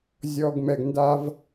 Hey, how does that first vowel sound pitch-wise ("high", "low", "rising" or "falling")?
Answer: low